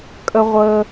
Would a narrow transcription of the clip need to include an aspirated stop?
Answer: no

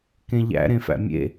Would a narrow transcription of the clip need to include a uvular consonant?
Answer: no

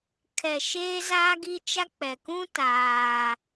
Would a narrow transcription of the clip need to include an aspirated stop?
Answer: yes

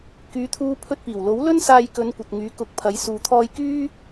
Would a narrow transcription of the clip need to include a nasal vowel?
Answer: no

